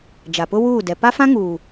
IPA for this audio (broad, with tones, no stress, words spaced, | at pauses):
d͡ʒa˨pʊ˦ wuː˦˨dɛ˨ pa˦fã˦ŋuː˨